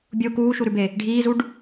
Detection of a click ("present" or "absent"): absent